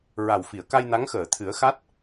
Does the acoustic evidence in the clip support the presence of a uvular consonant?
no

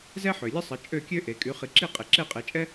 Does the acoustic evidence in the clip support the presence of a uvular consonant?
yes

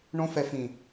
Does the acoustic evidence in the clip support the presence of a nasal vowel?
yes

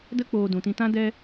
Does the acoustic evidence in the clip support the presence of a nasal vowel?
yes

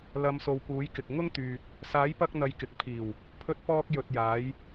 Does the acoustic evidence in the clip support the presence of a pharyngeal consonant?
no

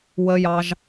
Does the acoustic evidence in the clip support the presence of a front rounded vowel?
no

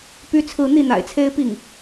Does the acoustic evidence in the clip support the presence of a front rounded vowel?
yes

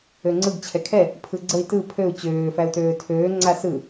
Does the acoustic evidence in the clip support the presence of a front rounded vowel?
yes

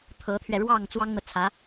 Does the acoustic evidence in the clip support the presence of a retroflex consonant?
yes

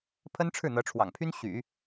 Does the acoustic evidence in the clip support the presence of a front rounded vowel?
yes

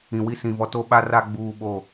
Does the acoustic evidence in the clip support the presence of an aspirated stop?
no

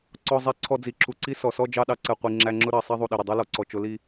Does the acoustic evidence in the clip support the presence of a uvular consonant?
yes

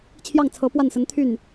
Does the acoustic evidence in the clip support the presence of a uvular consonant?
no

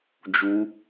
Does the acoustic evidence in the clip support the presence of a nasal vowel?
no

